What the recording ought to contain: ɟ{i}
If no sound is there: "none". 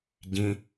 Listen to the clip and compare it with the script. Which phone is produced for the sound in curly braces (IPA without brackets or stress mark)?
ĩ